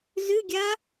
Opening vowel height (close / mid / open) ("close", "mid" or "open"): close